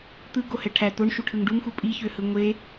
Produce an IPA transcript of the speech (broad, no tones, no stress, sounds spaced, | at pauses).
t̪ ɯ ɡ o h ɛ ʈʰ æ t̪ o ɳ ʃ u ʈʰ ɯ ŋ ɖ u ŋ x u pʼ i ç ø h ɯ ŋʷ e